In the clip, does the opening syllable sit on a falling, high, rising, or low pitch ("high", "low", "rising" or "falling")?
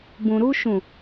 low